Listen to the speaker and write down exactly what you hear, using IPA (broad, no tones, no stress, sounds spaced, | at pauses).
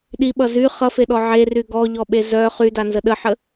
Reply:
ɗ i ɓ ʌ z y χ ʌ f e ɗ ɔ ʕ e r y ɡ ɔ ʎ ɔ ɓ e z œ χ y d a n z ə ɗ ə ħ ə